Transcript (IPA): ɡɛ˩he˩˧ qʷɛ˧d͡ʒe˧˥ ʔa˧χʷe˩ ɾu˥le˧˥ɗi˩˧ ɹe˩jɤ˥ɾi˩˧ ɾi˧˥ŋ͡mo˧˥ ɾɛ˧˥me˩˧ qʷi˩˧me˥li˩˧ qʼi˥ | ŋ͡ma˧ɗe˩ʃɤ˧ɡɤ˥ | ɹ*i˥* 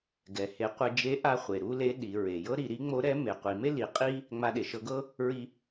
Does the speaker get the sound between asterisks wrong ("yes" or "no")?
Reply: yes